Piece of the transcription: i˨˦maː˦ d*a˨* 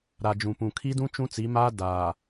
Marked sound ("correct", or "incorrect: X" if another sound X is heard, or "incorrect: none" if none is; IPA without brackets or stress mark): incorrect: aː˨